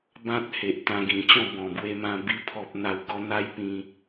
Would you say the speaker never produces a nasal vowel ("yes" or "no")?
no